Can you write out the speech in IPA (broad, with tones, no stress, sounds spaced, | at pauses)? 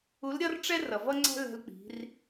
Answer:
u˧˥ l ɾʲ ʌ˥ r ʈ͡ʂ ɛ˥ r ʌ˩ v ʌ˥ ŋ͡ǀ æ̤˥ l ɛ̤˧ l k͡p i̤˩˧ r